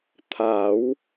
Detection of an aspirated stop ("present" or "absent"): present